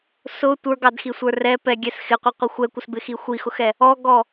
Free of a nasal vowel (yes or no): yes